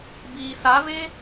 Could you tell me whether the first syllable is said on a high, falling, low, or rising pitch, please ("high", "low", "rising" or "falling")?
low